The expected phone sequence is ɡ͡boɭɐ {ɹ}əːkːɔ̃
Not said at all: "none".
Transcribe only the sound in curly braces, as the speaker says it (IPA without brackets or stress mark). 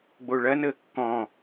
n